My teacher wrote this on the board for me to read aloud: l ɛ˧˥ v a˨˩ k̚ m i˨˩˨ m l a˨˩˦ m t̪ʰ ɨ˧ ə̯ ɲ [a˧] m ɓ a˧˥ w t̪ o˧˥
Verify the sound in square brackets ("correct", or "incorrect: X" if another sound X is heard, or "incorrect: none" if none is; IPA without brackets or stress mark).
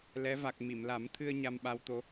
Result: correct